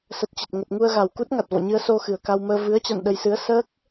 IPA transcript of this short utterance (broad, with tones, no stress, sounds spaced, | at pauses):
s ə˨˩ t̚ t͡ɕ ə˨˩ t̚ ŋ ə˨˩ t̚ ŋ u˧ ə̯ ɣ a˨˩ w k u˦˥ t̚ ŋ a˨˩ t̚ v ɔ̰˧˨ ɲ ɨ˧ ə̯ s o˧ x ɨ˨˩ ə̯ k a˧ w m əː˧ v ɨ˨˦ ə̯ t͡ɕ a̰˧˨ n ɗ ə˧ j s ɨ˨˦ ə̯ s əː˦˥ k̚